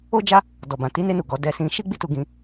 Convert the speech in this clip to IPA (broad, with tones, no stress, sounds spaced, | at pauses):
o˦ d͡ʒ a˦ | d ɔ˨ b ã˨ t i˨˦ n e˧ n u˨ ɡ ɔ˨˦ d ɛ˧ s ĩ˧ ʃ i˦ ɡ͡b i˦ t u˧ ɡ ĩ˧